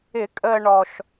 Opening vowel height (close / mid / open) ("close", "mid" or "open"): close